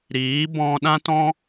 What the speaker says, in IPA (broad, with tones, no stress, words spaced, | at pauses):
ɾiː˨˦ bɔ̃˧ ɗã˦tɔ̃˦